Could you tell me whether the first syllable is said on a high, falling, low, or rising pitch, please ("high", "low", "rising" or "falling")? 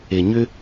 low